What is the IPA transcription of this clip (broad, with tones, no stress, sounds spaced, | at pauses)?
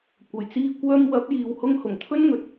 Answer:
kʷ ɐ˨˩ j t͡s iː˧ kʷ œː˧ m w ɐ˨˥ p̚ j iː˨ w h ʊ˧ ŋ h ʊ˨˩ ŋ t̪ʰ ɵ˥ n ŋ ɵ˨ t̚